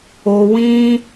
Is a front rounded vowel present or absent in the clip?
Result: absent